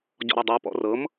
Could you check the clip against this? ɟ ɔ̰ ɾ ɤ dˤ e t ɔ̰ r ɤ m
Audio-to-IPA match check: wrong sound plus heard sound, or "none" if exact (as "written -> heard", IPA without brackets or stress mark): t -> p